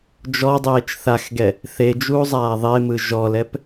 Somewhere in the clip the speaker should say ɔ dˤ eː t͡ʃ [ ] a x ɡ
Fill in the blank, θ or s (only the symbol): θ